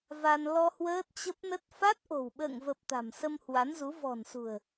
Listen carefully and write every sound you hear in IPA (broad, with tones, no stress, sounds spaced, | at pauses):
v a˧ n l ɔ˧ h w əː˦˥ t̚ t͡ɕ ə˦˥ p̚ n ə˦˥ t̚ f a˦˥ t̚ ʔ o̤˨˩ w ɓ ə̰ː˧˨ ŋ v ə˨˩ p̚ t̪ a̤˨˩ m s ə˧ m h w a˨˦ n z u˨˦ v ɔ̤˨˩ n s ṳ˨˩ ə̯